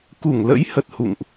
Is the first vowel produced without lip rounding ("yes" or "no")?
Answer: no